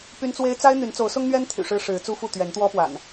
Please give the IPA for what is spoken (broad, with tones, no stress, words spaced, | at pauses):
py˦nt͡swe˦ɪ̯ t͡sa˦ɪ̯ n̪y˨˦nt͡so˨˦ʊ̯sʊ˦ŋ n̪ɥɛ˦nt̪ʰy̰˨˩ ʂɻ̩˦ʂɻ̩˨˦t͡su˦fu˥˨ t̪ɥɛ˨˦nt̪wɔ˦pwa̰˨˩n